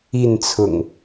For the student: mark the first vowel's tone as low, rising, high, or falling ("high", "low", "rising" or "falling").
falling